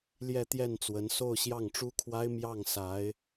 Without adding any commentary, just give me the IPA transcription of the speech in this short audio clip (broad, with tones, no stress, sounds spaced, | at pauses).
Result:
l j ɛ˥˧ t̪ j ɛ˥˩ n t͡s w ə˧˥ n s o˥˧ ʊ̯ ɕ j ɑ˥˩ ŋ ʈ͡ʂ u˥ kʰ w a˥ ɪ̯ m j ɑ˥˩ ŋ s a˧˥ ɪ̯